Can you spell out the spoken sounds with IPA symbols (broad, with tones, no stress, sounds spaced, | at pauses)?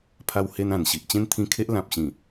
pʰ a˧ w h e˧ n ã˨˩ n ɕ i˨ ʔ t͡ɕ ẽ˦ n t̪ʰ ĩ˧ kʰ e˦ ʔ l ã˨ p̚ ɕ ĩ˨˩